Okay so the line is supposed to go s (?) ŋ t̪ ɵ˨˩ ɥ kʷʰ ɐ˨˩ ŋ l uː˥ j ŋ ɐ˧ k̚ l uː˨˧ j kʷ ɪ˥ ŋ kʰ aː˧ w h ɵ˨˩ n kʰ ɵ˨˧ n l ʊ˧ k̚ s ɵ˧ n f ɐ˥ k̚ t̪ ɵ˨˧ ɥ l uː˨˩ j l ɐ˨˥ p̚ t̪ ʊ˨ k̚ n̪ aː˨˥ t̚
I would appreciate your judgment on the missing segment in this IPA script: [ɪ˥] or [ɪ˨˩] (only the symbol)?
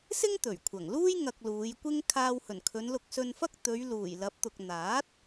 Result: ɪ˥